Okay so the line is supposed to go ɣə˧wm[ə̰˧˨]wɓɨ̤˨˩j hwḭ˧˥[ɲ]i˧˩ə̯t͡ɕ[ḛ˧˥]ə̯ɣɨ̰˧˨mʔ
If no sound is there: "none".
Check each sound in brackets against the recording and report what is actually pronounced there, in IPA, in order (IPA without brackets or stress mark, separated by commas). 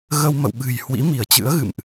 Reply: ə̰˧˨, m, ɨ̰˧˥